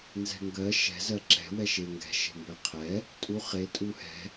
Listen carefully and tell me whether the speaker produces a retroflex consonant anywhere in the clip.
no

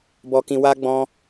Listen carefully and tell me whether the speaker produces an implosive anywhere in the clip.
no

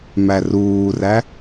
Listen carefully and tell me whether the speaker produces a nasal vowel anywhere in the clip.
no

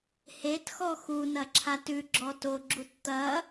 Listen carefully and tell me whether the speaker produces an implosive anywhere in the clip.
no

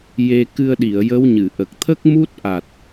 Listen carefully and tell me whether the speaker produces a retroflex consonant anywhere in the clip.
no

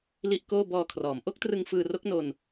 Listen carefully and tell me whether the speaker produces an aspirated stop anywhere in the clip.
yes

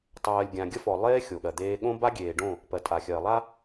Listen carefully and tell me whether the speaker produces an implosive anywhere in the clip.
yes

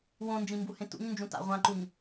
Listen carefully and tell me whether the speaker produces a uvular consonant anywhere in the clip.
yes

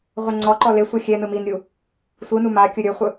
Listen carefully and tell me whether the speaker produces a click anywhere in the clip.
yes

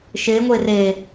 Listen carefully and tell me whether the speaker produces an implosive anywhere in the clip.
no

